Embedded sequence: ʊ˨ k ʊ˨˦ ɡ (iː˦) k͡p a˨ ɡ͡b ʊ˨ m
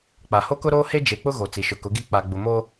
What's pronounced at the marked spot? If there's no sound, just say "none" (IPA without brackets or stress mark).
i˦